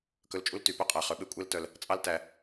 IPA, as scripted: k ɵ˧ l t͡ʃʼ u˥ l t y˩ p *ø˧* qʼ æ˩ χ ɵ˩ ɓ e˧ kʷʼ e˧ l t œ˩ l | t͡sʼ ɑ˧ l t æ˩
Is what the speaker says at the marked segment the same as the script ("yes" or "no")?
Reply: no